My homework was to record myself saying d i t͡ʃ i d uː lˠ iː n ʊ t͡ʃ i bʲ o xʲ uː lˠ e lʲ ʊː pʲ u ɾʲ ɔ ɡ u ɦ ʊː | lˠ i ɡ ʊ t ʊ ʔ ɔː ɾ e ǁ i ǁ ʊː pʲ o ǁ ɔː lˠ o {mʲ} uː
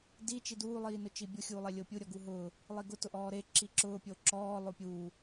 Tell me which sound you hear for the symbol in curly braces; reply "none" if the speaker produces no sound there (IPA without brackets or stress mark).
pʲ